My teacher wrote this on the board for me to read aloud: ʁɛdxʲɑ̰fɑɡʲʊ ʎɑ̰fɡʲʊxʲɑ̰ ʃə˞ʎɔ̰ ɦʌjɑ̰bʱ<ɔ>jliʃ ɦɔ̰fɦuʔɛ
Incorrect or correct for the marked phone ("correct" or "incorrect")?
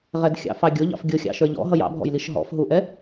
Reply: incorrect